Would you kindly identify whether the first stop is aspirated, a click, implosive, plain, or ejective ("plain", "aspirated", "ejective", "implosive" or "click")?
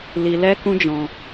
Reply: plain